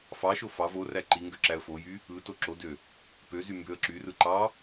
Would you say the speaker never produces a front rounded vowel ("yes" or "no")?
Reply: no